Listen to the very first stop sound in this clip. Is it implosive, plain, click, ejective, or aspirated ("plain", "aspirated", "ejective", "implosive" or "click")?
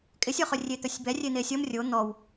ejective